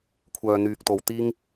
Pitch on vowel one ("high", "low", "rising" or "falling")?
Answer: low